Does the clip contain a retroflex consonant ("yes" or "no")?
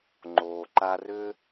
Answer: no